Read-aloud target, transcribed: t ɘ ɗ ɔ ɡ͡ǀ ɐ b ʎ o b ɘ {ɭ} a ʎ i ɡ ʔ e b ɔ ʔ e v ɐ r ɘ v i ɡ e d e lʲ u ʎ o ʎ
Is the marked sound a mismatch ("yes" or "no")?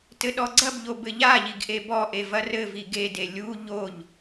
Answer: yes